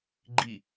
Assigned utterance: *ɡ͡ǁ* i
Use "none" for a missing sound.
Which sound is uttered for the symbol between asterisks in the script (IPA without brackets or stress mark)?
ɡ͡ǃ